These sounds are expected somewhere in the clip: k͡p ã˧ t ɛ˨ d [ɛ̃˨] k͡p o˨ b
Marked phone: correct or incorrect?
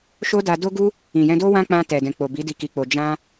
correct